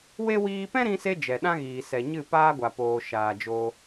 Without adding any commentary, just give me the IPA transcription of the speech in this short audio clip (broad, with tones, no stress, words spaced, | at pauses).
we˦ wiː˧pɛ̃˦ɾĩ˧se˧ d͡ʒɛ˨ɗã˦ɣiː˨ sɛ˨ɲɨ˦˨ paː˦ɡʷa˨poː˨ ʃaː˨d͡ʒo˧